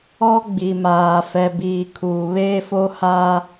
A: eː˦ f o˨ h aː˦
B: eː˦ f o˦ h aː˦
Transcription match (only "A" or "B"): B